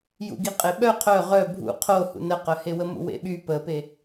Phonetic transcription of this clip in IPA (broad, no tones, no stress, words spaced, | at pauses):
jṵɡiqʼeɓœ qʰœ ʁœ bʱṵ qʰo hṵnəqœhe wəmṵwḛɓy pəpe